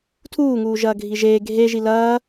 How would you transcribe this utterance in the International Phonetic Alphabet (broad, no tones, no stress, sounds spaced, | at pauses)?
tʰ uː ŋ uː ʒ ɐː ɡʱ i ʒ eː ɡʱ e ʒ i l ɐː